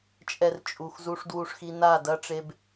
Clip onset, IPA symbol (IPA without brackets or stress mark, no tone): t͡ʃʼ